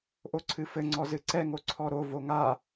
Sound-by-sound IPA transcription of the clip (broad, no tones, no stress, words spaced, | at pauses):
ʔoǀʰɨfɘ ŋ͡ǀɔzɨǀɛ ŋoǀʰɔɾo voŋa